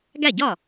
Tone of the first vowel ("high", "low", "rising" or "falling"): falling